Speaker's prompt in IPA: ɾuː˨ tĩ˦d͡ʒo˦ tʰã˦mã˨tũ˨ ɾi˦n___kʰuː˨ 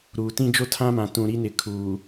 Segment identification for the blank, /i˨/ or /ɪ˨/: ɪ˨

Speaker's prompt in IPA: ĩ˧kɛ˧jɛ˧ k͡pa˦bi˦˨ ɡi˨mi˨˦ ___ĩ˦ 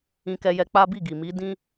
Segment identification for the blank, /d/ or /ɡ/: d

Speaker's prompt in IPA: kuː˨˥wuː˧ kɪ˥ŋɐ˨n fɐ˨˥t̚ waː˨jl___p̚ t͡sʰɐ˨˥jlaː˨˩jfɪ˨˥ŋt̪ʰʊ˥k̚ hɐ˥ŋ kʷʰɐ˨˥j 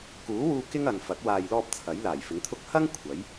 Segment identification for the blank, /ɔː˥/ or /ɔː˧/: ɔː˧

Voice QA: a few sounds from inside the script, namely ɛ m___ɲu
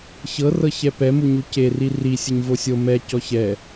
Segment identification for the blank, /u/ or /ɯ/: u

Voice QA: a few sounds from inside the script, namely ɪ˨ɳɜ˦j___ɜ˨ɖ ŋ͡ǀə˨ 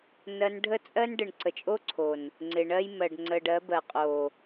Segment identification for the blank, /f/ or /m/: m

